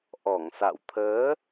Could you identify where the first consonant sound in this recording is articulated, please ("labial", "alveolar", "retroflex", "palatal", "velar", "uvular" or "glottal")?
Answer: glottal